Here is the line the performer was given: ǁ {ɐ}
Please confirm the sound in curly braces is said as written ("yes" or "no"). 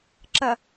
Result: yes